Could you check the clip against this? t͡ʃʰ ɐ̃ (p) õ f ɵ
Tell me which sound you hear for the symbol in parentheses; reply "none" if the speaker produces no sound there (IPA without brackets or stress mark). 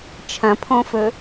pʰ